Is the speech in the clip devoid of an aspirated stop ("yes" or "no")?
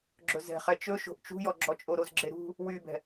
yes